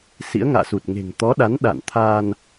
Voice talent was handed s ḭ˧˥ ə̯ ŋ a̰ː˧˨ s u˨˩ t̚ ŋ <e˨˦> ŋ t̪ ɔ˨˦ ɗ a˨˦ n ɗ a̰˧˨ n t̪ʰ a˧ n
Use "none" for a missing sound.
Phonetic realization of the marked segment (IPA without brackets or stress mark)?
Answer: e̤˨˩